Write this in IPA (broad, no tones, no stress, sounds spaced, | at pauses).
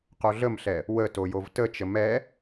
q o ɮ ə m ɬ ɛ | w ə t o j o v t ə t͡ʃ ə m ɛ